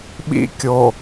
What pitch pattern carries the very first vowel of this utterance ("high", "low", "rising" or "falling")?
high